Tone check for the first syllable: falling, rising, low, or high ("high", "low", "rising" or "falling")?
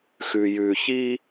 low